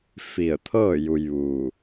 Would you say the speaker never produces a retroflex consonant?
yes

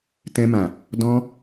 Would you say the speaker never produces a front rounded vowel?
yes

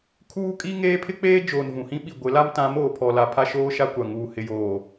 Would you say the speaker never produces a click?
yes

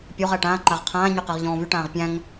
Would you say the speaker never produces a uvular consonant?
no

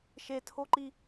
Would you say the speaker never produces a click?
no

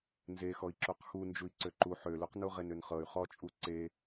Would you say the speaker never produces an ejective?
no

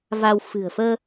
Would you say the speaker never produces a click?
yes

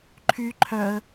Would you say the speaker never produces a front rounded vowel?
no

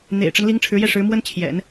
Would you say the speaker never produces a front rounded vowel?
yes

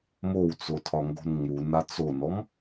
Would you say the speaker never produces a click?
yes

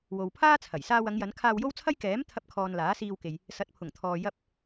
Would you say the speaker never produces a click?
yes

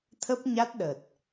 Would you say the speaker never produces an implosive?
no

